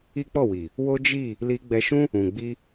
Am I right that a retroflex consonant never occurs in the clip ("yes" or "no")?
yes